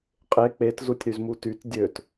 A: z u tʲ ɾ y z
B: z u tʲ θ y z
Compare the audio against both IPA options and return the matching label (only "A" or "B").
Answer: A